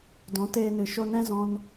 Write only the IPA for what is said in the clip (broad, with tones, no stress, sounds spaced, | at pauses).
d ɔ̃˨˦ t eː˧ n ɨ˨ ʃ o˧ n ɛ̃˦ z ɔ̃˧ n